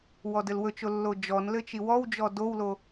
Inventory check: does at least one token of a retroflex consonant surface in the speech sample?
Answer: no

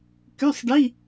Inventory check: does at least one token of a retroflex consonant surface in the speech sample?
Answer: yes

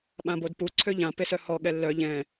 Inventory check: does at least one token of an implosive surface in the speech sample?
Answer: yes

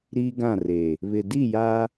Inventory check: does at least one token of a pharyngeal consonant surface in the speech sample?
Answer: no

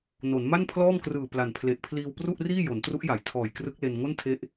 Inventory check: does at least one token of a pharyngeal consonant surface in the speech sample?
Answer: no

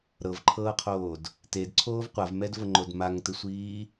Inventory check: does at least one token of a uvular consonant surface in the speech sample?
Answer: yes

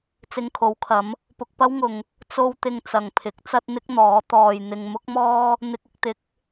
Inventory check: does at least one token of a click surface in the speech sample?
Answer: no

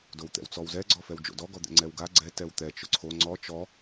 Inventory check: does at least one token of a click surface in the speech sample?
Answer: yes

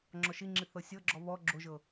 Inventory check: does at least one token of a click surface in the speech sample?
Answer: yes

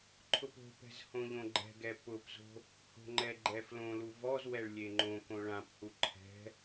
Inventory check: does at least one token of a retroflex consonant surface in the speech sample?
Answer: yes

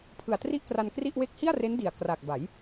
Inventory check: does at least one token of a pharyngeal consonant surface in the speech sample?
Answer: no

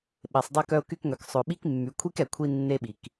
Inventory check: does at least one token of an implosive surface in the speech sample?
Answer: yes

